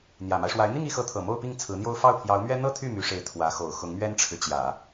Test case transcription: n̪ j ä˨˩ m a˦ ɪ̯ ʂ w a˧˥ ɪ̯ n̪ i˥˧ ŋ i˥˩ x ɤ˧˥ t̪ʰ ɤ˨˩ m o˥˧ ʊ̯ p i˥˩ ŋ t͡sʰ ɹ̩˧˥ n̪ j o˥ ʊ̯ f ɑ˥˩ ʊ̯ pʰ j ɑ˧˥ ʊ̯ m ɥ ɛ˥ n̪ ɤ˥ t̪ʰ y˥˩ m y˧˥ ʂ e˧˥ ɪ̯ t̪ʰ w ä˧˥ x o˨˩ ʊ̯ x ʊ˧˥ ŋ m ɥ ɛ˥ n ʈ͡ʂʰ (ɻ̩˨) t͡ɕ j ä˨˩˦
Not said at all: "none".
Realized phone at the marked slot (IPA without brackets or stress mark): ɻ̩˨